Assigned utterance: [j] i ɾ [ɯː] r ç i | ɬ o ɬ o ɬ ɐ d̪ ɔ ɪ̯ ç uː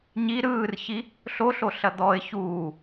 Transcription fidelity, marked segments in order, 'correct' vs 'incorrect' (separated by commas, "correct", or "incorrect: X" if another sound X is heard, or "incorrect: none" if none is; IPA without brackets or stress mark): incorrect: ɲ, correct